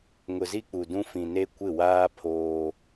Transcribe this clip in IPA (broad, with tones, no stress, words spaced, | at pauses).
ŋʊ˨zi˦k͡pu˨dũ˦ fĩ˨ne˦ kʷɪ˦˨waː˦ pʰoː˦